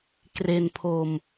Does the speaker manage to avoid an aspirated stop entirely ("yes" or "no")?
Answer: no